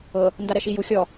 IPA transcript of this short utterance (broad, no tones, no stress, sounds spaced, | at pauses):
ɤ | n d a ɾ ɛ ʃ i j u xʲ ɔ